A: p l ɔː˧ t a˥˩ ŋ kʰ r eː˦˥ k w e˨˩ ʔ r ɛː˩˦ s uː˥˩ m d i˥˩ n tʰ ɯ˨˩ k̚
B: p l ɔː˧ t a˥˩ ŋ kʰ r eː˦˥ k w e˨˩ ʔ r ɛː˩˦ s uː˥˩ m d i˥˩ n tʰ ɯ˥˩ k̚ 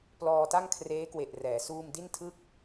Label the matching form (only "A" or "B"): B